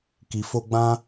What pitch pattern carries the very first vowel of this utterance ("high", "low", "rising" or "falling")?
low